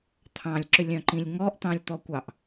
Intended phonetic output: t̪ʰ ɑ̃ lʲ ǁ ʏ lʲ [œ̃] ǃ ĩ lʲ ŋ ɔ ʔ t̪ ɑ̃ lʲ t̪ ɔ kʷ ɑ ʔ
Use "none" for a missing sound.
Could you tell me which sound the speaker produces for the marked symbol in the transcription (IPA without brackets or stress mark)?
œ̃